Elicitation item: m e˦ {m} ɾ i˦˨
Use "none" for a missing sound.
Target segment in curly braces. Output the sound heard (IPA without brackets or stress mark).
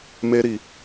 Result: none